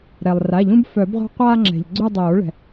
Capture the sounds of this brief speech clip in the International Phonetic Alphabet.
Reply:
ɾ ɛ˩ lˠ r a˩˧˩ ʎ ũ˦ b f œ˨˩˦ b ʁʷ a̤˦ qʷ aː˦ ŋ͡ǁ ɛ̤˩ ʎ ɡ͡ǀ u˦˨ dˤ oː˨˩˦ ɭ ɛ̤˩

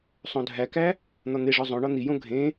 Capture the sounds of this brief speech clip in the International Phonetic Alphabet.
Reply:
sˤ õ dʱ æ k æ | n̪ ɒ n̪ e ʐ ɒ zˤ õ ɳ ɒ n̪ i j õ ɡʱ ẽ

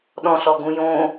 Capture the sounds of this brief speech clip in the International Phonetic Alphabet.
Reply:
ɗ ɔ̃ ɬ ɔ ɡ ũ j õ

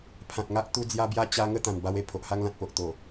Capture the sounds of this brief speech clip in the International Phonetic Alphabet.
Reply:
pʰ ã˨ t̚ ŋ a˦ ʔ t̪ u˧ d͡z j a˧ b j a˧ t͡ɕ a˧ ŋ ə˥˧ t̪ ã˨˩ n b a˧ w e˨˩ pʰ o˨ ʔ h a˧ ŋ l ã˨ t̚ p o˨ ʔ t̪ o˨˩

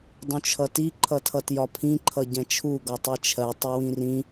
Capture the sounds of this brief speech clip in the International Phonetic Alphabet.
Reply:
dˤ ũ t͡ʃʰ ʌ t i ǃʰ ʌ tʰ ʌ t j ɒ pʰ ĩ ǃʰ ʌ ɟ ɛ̃ t͡ʃʰ u ɡ ɒ tˤ i t͡ʃʰ ɜ tˤ ʊ w ĩ r ĩ

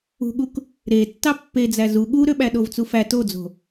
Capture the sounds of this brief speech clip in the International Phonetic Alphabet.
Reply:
ṳ ɠ u k | ɾ e tː ɑ pː e d͡z æ z u ɠ u ɾ ø ɓ æ ɗ o v t͡s u f æ t o d͡z o̤

